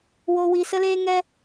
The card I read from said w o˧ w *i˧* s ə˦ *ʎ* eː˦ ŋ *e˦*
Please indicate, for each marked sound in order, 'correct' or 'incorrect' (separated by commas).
correct, incorrect, incorrect